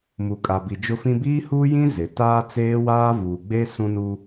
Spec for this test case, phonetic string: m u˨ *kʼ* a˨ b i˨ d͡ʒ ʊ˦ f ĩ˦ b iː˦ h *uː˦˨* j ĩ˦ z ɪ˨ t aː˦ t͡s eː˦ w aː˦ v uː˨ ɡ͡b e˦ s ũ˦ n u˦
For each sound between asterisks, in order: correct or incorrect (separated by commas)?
correct, incorrect